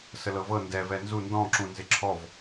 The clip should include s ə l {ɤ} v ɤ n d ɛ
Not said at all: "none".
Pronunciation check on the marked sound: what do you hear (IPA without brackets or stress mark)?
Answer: ɤ